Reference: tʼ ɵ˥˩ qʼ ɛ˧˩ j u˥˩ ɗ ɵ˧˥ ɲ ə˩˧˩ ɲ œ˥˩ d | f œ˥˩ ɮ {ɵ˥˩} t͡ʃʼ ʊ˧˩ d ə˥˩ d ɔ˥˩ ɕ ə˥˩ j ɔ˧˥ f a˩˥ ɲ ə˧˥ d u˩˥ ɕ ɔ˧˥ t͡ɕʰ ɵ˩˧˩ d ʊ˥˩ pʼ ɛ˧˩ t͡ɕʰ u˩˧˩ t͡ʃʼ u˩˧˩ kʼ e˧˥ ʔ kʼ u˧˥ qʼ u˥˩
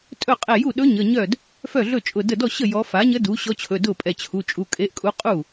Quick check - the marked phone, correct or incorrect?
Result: correct